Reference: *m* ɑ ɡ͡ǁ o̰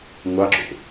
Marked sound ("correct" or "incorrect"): incorrect